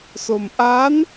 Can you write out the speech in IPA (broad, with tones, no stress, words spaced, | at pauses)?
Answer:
so˧m ʔa˦˥n